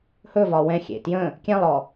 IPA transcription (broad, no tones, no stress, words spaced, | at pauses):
hɵ vɒwɛ̃xʲḛ tjə̃ | kʲɛ̃lˠɔ